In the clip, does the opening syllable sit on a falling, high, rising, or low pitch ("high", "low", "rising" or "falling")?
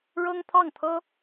high